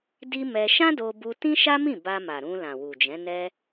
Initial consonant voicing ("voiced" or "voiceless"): voiced